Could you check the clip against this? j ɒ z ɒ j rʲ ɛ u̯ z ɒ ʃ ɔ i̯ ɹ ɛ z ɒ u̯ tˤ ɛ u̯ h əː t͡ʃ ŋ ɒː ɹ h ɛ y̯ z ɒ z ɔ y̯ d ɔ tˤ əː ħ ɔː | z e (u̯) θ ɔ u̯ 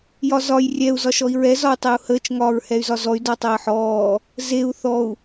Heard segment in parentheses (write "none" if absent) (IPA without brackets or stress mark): u̯